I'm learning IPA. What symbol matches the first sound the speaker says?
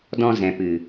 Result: d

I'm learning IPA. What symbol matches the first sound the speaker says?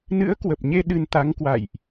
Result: n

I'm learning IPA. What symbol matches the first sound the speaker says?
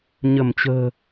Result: ɲ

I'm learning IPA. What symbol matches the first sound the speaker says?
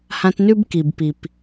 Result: h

